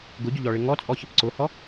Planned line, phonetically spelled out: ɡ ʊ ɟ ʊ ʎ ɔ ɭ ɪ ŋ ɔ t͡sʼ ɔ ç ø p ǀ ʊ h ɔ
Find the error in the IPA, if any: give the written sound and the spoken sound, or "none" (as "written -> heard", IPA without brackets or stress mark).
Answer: ø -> ə